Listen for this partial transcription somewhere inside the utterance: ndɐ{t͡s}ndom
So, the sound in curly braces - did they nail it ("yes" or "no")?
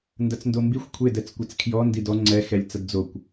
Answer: yes